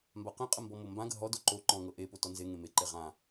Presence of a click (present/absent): present